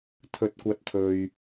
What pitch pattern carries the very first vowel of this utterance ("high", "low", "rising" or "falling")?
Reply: low